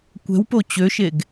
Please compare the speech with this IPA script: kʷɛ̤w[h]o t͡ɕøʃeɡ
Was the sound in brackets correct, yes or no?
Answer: no